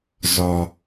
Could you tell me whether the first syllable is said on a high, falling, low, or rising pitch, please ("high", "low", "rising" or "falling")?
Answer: low